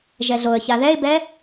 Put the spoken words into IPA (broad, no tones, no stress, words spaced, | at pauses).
ʒɛɮoə̯ça ðɛɪ̯bɛ